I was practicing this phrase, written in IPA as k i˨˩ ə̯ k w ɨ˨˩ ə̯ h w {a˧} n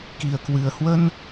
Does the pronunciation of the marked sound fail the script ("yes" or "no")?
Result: yes